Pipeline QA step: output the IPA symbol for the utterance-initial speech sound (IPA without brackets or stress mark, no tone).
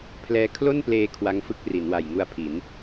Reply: pʰ